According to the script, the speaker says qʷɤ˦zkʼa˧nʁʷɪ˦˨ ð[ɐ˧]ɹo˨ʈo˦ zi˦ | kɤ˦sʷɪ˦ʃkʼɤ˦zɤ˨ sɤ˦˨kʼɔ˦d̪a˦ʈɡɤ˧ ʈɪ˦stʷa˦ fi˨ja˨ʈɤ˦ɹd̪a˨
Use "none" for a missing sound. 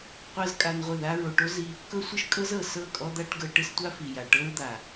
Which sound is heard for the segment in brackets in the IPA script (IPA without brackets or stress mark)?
a˧